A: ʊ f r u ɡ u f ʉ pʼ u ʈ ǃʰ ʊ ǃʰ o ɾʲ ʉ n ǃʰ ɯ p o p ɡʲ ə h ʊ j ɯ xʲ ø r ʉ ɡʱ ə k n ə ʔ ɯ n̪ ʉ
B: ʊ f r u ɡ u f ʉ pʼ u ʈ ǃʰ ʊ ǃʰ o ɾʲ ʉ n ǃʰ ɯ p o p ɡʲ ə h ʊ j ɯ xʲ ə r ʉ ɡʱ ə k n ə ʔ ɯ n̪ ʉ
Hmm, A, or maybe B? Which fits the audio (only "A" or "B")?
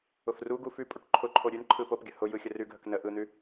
B